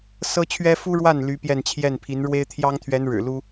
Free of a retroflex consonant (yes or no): no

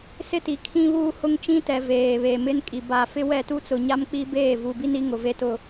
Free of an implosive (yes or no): yes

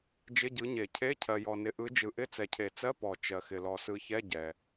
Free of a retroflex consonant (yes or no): yes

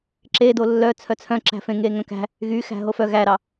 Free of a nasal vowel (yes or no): no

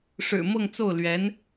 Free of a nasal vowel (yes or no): yes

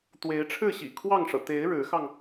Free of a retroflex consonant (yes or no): no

